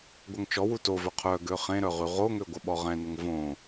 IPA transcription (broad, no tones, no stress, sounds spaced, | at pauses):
ɡʷ œ ŋ t͡ʃ ɔ w u t o v œ qʰ œ ɡ ø χ ẽ ɾ œ ʁ y ʁ o ŋ ø ɡʷ ə ɓ ɔ ʁ ɛ̃ n ə ŋ v õ